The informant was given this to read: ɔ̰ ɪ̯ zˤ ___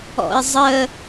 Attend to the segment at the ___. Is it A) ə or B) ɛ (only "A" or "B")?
A